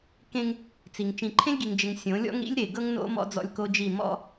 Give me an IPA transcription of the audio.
kẽ˦ŋ | t͡si˨ŋ t͡ʃĩ˨ǃʰẽ˦lʲɡi˨ŋd͡ʒɘ˨ŋ sʲõ˨˦lʲɔ̰˦ŋɾḭ˦lʲɾe˨ ɡɤ˦ŋno̰˦ mɔ̰˦d͡zɔ̰˦lʲ ko˦d͡ʒi˦˨ mɔ̰˦

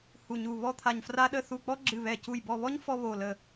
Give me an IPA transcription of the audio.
hu˧˩ɲu˧˩ βɔ˥t̪ʰa˧˩ɲfra˥ɗə˥ θu˧˩k͡pɔ˥ ɡ͡ǁɨ˧˩βɛ˧˩cu˧˩j bɔ˧˩βɔ˥ɲ fɔ˥βo˧˩lə˧˩

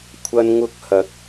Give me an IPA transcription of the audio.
kʷʰɐ˧nŋʊ˧k̚hɐ˨˥k̚

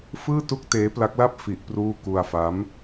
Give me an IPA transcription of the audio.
fɯː˥˩tu˥˩k̚teː˦˥ pla˦˥k̚la˥˩p̚ fi˦˥ʔpruː˥˩ ku˧a̯fa˦˥m

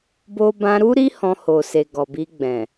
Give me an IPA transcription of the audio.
bo˦ bã˧ɾu˦ɾi˦ hɔ̃˧ho˨se˨ ɡɔ˨bi˧ɡ͡bɛ̃˨

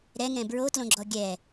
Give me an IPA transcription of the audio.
ɾɛ ŋɛ̃bɹotlõɡ͡ǁɔ ɡʲɛ

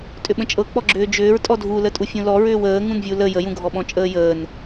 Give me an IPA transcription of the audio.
tʼʏɓə̃t͡ʃʼɤk͡pɔ ɡ͡ǁʏːd͡ʒʏːɹ tʼɔdʱulətʼu fʲũlɔ ɹʏːwəː ŋũnvʲulə jəjũɡʱɔ ɓɔ̃t͡ʃʼəːjəːn

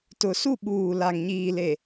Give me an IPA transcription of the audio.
tʊ˨ su˦˨ ɓuː˨ la˨ŋɲiː˨le˨

